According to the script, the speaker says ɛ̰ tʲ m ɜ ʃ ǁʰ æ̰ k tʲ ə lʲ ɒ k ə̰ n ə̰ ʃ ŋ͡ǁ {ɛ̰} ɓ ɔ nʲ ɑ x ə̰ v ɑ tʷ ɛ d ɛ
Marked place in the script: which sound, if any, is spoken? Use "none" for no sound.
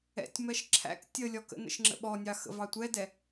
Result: ə̰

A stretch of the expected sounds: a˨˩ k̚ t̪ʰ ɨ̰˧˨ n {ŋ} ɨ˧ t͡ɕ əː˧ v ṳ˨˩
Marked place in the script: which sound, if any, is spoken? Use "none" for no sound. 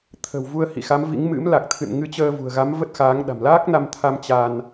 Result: ŋ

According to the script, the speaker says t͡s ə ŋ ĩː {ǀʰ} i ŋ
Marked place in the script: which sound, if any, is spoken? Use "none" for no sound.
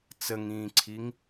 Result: ǀʰ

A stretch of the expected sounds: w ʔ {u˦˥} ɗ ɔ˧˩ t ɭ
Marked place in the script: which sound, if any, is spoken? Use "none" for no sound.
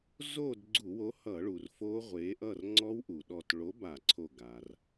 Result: u˩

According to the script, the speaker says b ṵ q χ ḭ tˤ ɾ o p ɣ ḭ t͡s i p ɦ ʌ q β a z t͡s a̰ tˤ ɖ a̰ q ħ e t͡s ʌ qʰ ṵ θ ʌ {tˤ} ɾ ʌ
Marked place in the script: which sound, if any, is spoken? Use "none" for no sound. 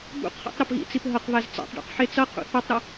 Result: tˤ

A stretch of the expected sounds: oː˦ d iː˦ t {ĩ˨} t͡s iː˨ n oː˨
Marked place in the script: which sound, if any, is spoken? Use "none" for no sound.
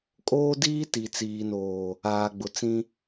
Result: i˨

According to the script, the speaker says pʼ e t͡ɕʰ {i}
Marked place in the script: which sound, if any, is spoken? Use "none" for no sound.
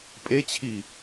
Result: i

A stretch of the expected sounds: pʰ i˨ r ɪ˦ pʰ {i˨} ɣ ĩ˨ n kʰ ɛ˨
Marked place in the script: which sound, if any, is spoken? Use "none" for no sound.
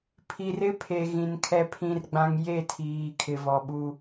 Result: e˨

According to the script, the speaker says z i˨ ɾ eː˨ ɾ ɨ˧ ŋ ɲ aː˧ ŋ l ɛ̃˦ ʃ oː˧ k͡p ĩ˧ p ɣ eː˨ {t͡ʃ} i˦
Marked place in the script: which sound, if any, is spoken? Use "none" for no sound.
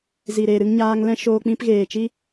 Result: t͡ʃ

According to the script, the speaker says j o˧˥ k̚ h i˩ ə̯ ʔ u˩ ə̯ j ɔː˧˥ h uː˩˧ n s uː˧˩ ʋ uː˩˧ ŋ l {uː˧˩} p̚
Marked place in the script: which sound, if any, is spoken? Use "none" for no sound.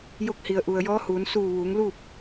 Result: uː˥˨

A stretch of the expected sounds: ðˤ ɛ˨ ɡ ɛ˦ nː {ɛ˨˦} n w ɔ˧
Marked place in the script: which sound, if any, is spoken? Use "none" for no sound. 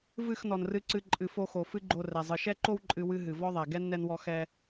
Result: ɛ˧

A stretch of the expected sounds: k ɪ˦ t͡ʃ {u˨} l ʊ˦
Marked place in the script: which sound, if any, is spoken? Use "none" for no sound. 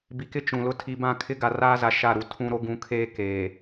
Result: ũ˨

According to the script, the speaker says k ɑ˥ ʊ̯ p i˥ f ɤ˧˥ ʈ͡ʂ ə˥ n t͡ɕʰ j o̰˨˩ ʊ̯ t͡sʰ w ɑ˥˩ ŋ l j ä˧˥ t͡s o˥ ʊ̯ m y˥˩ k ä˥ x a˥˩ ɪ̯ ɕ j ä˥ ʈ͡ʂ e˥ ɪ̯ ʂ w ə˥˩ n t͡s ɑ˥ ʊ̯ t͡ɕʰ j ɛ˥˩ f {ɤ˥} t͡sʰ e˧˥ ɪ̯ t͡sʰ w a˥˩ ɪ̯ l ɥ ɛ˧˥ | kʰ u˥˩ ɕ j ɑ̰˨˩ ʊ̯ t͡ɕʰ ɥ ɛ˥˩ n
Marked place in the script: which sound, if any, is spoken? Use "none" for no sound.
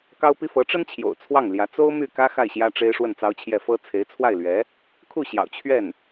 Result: ɤ˥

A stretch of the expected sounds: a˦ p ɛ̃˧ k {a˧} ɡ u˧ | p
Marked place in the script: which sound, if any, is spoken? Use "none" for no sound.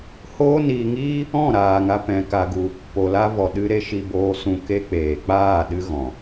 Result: a˧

